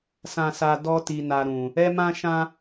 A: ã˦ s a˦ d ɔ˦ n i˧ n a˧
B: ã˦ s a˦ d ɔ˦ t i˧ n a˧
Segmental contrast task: B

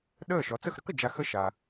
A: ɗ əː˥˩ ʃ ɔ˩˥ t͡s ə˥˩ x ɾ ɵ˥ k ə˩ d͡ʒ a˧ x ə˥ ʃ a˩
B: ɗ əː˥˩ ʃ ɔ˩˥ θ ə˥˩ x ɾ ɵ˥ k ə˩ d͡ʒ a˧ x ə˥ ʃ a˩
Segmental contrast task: A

